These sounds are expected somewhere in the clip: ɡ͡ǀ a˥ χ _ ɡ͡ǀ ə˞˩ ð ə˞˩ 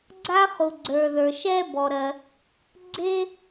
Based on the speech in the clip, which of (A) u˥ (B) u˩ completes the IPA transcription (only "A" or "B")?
B